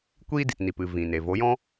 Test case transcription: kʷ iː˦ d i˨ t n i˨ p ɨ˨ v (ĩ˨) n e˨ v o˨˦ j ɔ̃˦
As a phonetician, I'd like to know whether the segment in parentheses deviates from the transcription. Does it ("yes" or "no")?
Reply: no